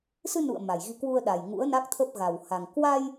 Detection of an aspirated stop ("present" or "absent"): present